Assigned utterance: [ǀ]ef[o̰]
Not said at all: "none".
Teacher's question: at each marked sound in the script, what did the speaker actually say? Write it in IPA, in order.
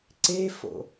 ǀ, o̰

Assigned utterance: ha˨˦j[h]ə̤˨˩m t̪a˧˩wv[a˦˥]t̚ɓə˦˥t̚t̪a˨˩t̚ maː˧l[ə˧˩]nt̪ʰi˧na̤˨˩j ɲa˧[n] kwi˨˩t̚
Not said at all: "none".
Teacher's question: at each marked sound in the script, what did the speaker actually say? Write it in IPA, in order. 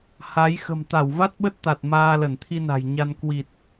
x, a˦˥, ə˧˩, n

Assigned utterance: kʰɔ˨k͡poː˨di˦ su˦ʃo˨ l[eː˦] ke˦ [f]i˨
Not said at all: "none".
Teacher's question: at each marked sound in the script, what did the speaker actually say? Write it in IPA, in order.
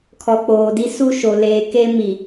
eː˨, m

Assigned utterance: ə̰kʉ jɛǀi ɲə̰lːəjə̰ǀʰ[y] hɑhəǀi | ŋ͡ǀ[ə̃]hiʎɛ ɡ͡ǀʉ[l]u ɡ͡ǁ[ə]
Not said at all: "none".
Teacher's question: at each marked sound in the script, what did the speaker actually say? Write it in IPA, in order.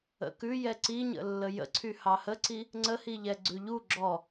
y, ə, ʎ, ɔ

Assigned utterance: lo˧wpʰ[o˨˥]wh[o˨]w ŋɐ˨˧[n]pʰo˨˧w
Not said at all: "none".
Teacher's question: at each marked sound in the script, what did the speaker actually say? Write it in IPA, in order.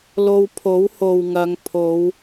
o˨˥, o˨, ŋ

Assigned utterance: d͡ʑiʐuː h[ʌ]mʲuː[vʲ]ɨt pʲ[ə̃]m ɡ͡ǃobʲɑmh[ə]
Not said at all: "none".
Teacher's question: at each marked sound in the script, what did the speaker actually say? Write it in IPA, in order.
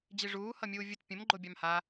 ʌ, vʲ, ə̃, a

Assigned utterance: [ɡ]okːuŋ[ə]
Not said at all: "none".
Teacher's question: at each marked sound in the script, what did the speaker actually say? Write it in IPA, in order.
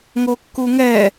ŋ, ɛ

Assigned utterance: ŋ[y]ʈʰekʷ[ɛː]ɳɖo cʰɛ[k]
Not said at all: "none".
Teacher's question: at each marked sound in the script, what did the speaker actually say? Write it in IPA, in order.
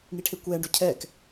i, ɛː, k

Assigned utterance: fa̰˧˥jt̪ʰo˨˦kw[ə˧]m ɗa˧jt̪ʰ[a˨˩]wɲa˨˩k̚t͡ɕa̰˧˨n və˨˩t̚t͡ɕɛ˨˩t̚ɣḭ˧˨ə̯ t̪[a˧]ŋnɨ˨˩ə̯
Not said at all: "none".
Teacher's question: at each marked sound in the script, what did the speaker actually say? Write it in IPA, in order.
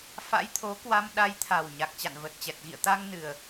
a˧, a˨˩, a˧

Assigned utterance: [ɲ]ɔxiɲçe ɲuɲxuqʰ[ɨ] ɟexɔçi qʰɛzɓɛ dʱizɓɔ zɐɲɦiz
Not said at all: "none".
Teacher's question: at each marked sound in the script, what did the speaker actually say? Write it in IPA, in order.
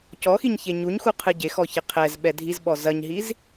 c, ɨ

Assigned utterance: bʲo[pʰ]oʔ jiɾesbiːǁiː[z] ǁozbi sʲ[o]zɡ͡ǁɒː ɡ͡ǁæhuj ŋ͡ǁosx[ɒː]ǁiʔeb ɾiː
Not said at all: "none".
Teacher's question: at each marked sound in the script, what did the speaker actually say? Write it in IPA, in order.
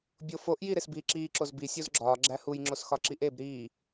f, none, o, ɒ

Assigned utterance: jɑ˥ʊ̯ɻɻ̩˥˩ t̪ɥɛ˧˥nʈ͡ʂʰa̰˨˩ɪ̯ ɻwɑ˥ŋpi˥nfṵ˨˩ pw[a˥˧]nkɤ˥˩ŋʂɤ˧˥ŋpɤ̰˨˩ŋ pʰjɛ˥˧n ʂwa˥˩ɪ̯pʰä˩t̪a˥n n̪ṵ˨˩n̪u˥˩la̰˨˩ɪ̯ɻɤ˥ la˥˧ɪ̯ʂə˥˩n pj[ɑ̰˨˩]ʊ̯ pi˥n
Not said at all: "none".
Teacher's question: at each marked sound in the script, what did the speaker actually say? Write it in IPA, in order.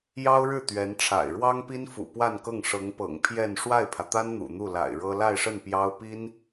a˥˧, ɑ˥

